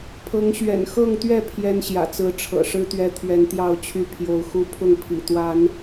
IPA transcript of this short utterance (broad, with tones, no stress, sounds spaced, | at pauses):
pʰ ɤ˨˦ ŋ ɕ ɥ ɛ̰˨˩ n x ɤ˥˨ ŋ t̪ ɥ ɛ˥˨ pʰ j ɛ˦ n ɕ j ä̰˨˩ t͡s ɹ̩˨˦ ʈ͡ʂʰ ɤ̰˨˩ ʂ ɻ̩˦ t̪ ɥ ɛ˦ t̪ʰ ɥ ɛ˨˦ n t̪ j ɑ˥˨ ʊ̯ t͡ɕʰ y˥˨ pʰ j o˨˦ ʊ̯ x u˦ pʰ ʊ˥˨ ŋ pʰ ḭ˨˩ t̪ w a˨˦ n